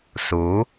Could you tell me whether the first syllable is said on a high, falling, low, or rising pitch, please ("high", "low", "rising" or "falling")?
rising